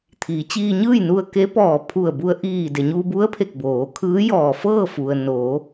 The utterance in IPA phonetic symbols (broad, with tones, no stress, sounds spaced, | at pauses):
t̪ʰ iː˩˧ t͡ɕ iː˧ ɲ ɯː˥˨ j n u˧ ə̯ k e˧˥ p ɔː˧˩ pʰ u˧˩ ə̯ b u˧ ə̯ ʔ iː˧˩ d e˩ ɲ uː˧ b u˧˥ ə̯ pʰ e˧˩ k̚ b oː˩˧ kʰ ɯː˧˥ j ɔː˧˩ f ɤː˥˨ f u˩ ə̯ n oː˩˧